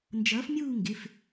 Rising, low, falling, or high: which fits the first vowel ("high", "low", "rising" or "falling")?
rising